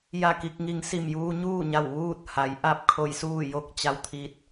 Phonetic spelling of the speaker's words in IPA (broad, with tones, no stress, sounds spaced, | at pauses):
j a˥˨ k i˧ k̚ ŋ i˧ ŋ s i˧˩ m j uː˧ ɲ uː˥˨ ɲ a˧˩ w ʋ uː˥˨ t̚ h a˩˧ j ʔ a˥˨ p̚ kʰ o˧ j s uː˥˨ j o˧ k̚ t͡ɕ a˧ w t̪ʰ i˧ t̚